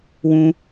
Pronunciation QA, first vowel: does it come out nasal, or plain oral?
nasal